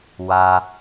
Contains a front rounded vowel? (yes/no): no